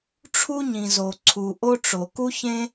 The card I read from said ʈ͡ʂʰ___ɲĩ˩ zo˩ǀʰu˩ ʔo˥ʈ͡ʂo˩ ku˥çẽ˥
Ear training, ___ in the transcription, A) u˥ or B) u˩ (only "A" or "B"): A